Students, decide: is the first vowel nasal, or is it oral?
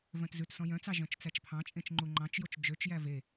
nasal